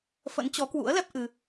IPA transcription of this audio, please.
f ə̰˧˥ n t͡ɕ ɔ˨˦ k w ṵ˧˥ ə̯ l ɛ˦˥ p̚ ʔ ɨ˧

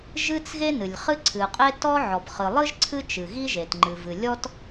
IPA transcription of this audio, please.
ʒ ɨ˥ t͡s ɣ e˥ n ɨ˩ lʲ χ ɨ˥ ǀʰ ɨ˩ qʼ e˥ t ɔ˥ ʕ ɔ˩ b χ ɨ˩ lˠ ɨ˥ ʒ ǀʰ ɨ˥ t͡ʃ ɨ˩ ɣ i˥ ʒ e˩ t ŋ͡ǃ ɨ˩ v ɨ˩ lʲ ɔ˥ t

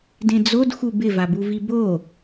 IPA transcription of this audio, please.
d ẽ d͡z o d x u b ɪ v a b u v i b o

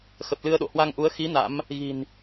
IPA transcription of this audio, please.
x ə˨˩ p̚ l ɨ˧ ə̯ ɗ o̰˧˨ h w a˧ ŋ ʔ u˨˦ ə̯ x i˨˦ n a̰˧˥ m | ɣ i̤˨˩ n

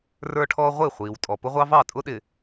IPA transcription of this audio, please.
r ə˞˦ ʈʰ ɔː˦ ʁʷ ɪ˦˨ χʷ iː˨ w tʼ ɔ˨ p ʊ˦ ʁʷ ɑ˦ v ɑ˦˨ tʼ ʊ˦ ɗ ɪː˨

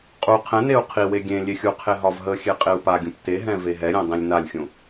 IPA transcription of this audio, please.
qʼ u qʰ ɛ̃ n e u̯ qʰ i w e ɡʲ ẽ lʲ e xʲ u qʰ e ɦ ɒ v ɦ ə xʲ e qʼ e u̯ p a ɡʲ ũ p t e ɦ ɛ̃ v e ɦ ɛ ɾʲ ɛ̃ dˤ ĩ lʲ n a lʲ xʲ ũ

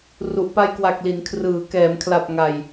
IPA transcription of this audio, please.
r u˨˩ ʔ p a˧ j k w a˨˩ k̚ l i˩˦ n kʰ r ɯː˩˦ k ɛː˩˦ m kʰ l a˨˩ p̚ ŋ a˧ j

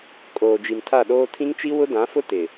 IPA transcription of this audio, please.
kʼ oː˨ d͡ʒ i˨ m tʰ a˦˨ ɗ oː˦ tʰ ĩ˦ ŋ t͡ʃ i˦ w ʊ˦ d ã˨˦ f ʊ˦ t ɪ˨

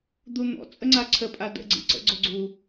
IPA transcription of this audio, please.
d̪ u n̪ ɔ̰ t͡sʼ ə ŋ͡ǀ a ǀʰ ə pʼ a d ə̰ ɡ͡ǀ ḭ ǀ ə̰ ɡ͡ǀ o ɡ͡ǀ u

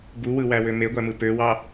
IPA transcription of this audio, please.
b u w ɯ w æ w ø m e ɡʷ æ m ɯ p ø w ɑ

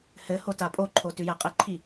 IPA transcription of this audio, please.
h ɘ h o t a pʼ o ǃʰ o t ʉ j æ qʼ ɘ ǃʰ i

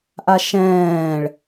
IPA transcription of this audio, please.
ʔ a ʃ ɛ̃ː ɭ

